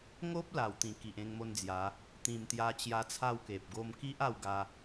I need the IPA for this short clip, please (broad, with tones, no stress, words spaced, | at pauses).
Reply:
ŋo˦p̚ la˨˩wt̪ĩ˨˩ ki˨ʔẽ˧ŋmo˦nd͡zja˨˦ | t̪ĩ˨˩mt̪ja˧t͡ɕja˧ t͡sʰa˥˧wke˨p̚ɡo˦m ki˦ʔ a˥˧wɡa˧